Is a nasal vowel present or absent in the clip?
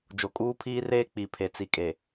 absent